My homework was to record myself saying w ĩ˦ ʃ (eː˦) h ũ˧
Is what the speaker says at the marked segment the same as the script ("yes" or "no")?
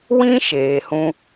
no